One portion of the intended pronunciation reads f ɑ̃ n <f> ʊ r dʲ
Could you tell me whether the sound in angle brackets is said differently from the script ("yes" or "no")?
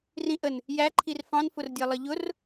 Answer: no